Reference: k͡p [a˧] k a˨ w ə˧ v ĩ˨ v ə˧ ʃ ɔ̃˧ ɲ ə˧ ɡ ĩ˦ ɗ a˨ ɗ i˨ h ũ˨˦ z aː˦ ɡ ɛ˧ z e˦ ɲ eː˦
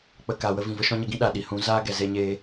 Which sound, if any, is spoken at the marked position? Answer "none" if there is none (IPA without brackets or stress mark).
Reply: ə˧